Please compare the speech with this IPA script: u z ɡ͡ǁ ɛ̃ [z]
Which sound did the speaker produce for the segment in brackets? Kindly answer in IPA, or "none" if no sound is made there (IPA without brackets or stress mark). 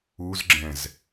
z